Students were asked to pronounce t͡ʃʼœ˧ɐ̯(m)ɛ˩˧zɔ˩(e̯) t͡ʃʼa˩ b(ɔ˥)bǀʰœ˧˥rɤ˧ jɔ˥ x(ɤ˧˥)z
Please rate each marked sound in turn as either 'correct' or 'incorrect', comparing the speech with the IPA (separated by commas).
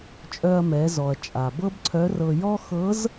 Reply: correct, incorrect, incorrect, correct